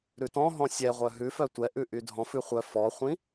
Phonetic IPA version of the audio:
ɾ ʉ t ɔ̃ ɦ ɔ̃ sʲ ɛ ʁʷ œ ɦ ʉ f œ tʷ ɛ ʔ ʉ ʔ y dʱ ɔ̃ f ʉ χʷ œ f ɔ χʷ ĩ

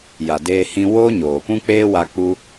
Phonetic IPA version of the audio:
j a˨ d eː˧ h ĩ˧ w oː˦ ɲ oː˨ p ũ˦ k͡p eː˦ w a˧ k͡p u˧

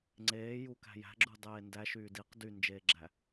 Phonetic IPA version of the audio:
ŋ͡ǀ eː j u k æ̤ j æ̤ ɡ͡ǁ u dˤ eː n d æ ʃ yː d i q d y n d͡ʒ eː ɡ͡ǁ æ

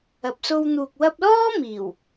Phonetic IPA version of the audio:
ɐ˨ p̚ s o˧ w n̪ uː˨ k̚ w ɐ˧ p̚ l ɔː˥ m iː˨˩ w

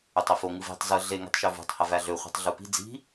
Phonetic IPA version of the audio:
ø tˤ i f o ŋ ɯ v i̤ tˤ z ɯ ɮ e ŋ i̤ tˤ ʃ ø v ṳ tˤ h æ v æ ɮ ø χʷ ɑ̤ tˤ ɮ u p i̤ d͡z i̤

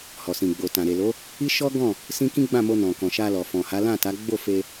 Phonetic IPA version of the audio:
h ɔ˨ s ĩ˨ ɡ͡b o˨ t ã˨ ɾ e˨ l o˨˦ | i˦ ʃ ɔ˦ ɡ ɔ̃˦˨ | s ĩ˦ k ĩ˦ ɡ͡b ã˦˨ m o˧ n ɔ̃˨ k ɔ̃˨ ʃ a˧ l ɔ˨ f ɔ̃˨ h a˨˦ l ã˦˨ t a˨˦ ɡ͡b o˦˨ f e˧

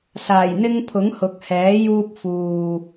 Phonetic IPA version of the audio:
s aː˨˩ j n̪ ɪ˧ ŋ pʰ ʊ˨˥ ŋ h ʊ˨˥ k̚ h ɛː˨˥ j uː˧ p̚ f uː˨

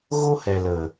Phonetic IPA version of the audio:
ɣ o˦ h ɛ˨ l ə˨

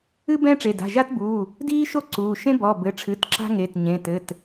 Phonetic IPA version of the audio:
ɨ˥ b ɛ̃˥ ʈ͡ʂ e˩˧˩ d a̤˩˧˩ ʒ a˥ t b uː˩˧˩ | d iː˥ ʃ o˥ ǀ uː˩˧˩ ʃ ẽ˥ b ɔ˩˧˩ b ɘ˩˧˩ ʈ͡ʂʰ ɨ˩˧˩ t ǁ a̤˥ ŋ e˩˧˩ t ɲ ẽ˩˧˩ t ɘ˩˧˩ t

